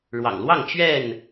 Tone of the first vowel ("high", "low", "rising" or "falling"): low